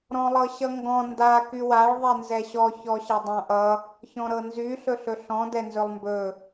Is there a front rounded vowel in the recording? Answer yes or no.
yes